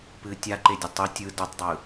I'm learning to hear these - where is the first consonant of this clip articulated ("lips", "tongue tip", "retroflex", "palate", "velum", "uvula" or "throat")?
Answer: lips